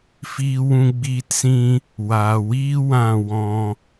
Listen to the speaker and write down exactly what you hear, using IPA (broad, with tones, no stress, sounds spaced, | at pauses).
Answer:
f iː˦ w ũ˦ ɡ͡b iː˦ t s ĩ˦ | w aː˨ w iː˦ w ã˦˨ w ɔ̃˧